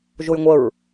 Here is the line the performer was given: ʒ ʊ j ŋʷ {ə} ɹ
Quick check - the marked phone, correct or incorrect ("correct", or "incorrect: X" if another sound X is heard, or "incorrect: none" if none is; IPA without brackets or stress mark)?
correct